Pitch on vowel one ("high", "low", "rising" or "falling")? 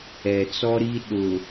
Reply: low